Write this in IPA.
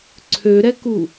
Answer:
ǀʰ ø ɾ ɛ k u

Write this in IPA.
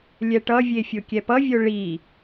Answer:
lʲ ɛ ʈ ʌ vʲ e fʲ o kʲ ɛ p ʌ vʲ o ɭ i

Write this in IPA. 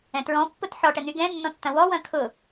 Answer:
ɛ̃ t ɹ ɔ̃ pː ʊ t ħ ɔ ʈ ɛ n̪ y ɡ ɛ̃ nː ɔ̃ tː ɐ̃ w ɔ w ɐ̃ kʰ ʊ

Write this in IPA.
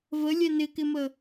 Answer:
v ə lʲ ɛ n ɪ k ɪ m ə

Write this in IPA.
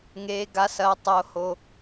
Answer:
ŋ eː˦ ɡ a˦ s ɐː˦ tˤ o˦ h o˦

